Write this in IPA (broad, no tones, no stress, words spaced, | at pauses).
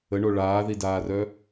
əɳo ɭaːðidaːrœ